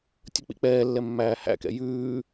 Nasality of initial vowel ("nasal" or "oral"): oral